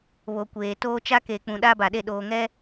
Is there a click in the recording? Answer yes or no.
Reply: no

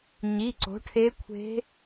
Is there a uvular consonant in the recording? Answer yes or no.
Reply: no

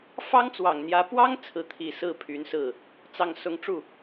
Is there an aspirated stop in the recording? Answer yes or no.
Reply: yes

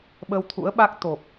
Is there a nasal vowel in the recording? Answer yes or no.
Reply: no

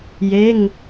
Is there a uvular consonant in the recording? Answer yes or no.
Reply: no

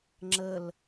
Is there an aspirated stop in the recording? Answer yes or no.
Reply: no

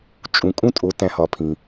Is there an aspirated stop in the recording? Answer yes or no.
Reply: yes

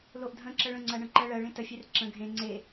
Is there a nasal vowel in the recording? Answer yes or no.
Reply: yes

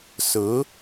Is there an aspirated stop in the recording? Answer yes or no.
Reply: no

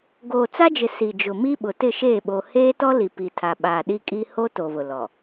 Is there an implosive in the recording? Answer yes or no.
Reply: yes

